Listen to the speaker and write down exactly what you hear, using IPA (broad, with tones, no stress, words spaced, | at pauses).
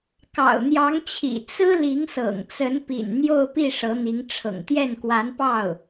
kɑ̰˨˩ʊ̯n̪jɑ˧˥ŋt͡ɕʰḭ˨˩ t͡sɹ̩˥ li˧˥ŋsɤ̰˨˩ŋ t͡sə˧˥npḭ˨˩n n̪jo˥˧ʊ̯pi˥˩ ʂɤ˧˥n̪i˧˥ŋ ʈ͡ʂʰɤ̰˨˩ŋt̪jɛ˥˩nkwa˧˥npɑ˥˩ʊ̯